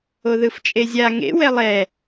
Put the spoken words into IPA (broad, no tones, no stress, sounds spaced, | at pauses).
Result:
o ð ɯ f t͡ʃʼ e zʲ a ŋ ḛ w ɛ lˠ ɛ